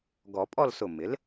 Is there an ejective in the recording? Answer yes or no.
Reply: yes